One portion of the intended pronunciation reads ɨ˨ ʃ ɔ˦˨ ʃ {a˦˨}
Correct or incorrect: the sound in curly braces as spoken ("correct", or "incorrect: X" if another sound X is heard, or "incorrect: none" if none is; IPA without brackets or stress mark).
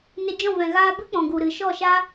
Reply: incorrect: a˦